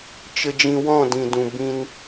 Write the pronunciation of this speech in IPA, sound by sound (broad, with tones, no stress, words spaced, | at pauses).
t͡ʃə˨d͡ʒĩ˨ wɔ̃˦˨dĩ˨dũ˨ bĩ˧n